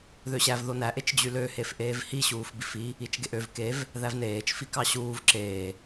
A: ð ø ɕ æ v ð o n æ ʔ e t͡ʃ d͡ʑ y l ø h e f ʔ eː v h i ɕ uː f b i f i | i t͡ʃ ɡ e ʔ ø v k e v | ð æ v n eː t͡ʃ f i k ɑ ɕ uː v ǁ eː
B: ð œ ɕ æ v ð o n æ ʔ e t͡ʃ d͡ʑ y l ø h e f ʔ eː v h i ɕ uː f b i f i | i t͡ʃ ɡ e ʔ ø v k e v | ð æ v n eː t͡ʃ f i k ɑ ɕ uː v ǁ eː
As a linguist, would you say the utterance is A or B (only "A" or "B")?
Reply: A